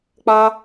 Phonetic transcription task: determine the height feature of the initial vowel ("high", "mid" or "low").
low